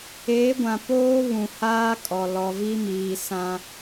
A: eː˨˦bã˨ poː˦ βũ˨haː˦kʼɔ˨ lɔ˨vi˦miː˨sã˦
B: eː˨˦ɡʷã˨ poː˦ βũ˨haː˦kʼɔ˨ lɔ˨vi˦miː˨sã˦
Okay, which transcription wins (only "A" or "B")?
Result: B